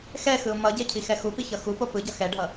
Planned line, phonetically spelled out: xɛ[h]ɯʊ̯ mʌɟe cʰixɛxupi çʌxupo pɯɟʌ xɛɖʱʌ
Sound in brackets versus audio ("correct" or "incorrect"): incorrect